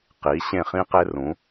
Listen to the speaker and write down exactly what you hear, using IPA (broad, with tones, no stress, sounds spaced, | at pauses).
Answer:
q i˨˦ ɕ ẽ˦˨ χ ĩ˦ q e˦ r ũ˨˦